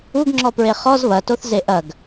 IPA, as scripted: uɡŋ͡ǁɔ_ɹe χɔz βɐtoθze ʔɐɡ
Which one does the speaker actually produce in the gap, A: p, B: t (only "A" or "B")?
A